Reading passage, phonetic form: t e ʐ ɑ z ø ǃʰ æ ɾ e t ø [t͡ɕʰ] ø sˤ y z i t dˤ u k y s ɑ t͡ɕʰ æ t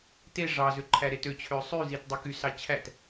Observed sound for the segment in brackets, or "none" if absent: t͡ɕʰ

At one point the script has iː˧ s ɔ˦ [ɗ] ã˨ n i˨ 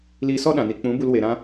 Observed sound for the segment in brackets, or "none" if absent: ɗ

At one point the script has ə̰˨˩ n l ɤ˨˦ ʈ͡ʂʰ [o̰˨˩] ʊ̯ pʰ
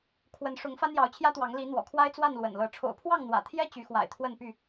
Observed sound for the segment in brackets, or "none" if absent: o̰˨˩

